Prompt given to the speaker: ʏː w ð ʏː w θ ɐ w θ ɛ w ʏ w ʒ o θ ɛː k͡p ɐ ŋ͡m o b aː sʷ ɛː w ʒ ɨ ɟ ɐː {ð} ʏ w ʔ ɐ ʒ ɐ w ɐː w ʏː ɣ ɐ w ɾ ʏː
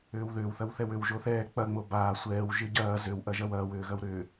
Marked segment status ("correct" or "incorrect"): incorrect